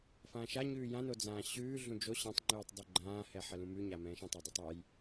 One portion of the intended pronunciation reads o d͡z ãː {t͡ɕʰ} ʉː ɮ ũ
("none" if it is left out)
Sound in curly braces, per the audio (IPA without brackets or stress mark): ɕ